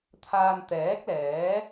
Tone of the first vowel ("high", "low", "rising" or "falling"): low